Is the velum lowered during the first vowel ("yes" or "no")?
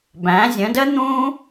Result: yes